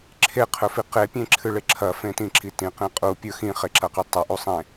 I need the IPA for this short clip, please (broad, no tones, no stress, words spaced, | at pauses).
ǁʰeqʰɵfi qepʲẽǁʰɨɭe ǁʰɐfẽtĩǁi tĩqĩ qʼupʲɵ xĩχeǁɐqi tˤɐʔusˤẽ